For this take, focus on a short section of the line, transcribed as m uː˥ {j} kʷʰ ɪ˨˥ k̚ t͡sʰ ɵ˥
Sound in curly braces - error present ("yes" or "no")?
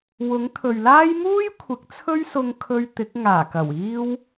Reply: no